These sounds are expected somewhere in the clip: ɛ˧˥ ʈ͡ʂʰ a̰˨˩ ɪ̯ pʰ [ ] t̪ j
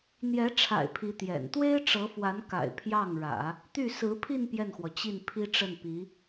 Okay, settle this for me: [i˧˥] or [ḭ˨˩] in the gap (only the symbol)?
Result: i˧˥